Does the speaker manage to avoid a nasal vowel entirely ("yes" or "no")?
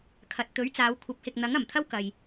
yes